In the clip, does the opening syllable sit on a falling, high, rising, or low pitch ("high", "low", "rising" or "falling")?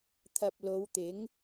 low